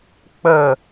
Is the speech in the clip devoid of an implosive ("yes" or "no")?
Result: yes